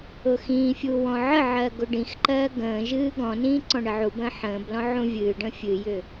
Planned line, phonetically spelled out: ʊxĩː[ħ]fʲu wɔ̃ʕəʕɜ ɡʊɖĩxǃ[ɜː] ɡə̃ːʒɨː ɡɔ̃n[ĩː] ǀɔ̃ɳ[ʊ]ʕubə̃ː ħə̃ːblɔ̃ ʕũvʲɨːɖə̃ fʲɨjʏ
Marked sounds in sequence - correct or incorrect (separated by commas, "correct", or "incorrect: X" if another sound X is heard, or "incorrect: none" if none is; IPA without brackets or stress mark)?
incorrect: none, correct, correct, incorrect: ə